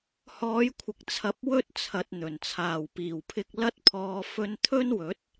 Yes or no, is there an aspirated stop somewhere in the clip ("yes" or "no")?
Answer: yes